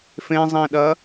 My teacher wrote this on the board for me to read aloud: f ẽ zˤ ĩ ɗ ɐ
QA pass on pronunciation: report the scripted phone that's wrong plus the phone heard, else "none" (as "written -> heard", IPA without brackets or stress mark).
none